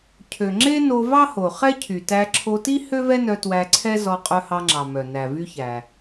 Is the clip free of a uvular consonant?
no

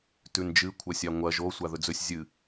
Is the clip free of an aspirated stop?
no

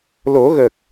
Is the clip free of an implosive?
yes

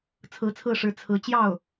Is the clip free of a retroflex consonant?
no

